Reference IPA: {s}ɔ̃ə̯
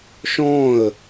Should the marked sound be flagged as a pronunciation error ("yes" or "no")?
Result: yes